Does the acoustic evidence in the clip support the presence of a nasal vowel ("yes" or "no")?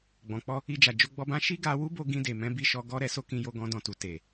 yes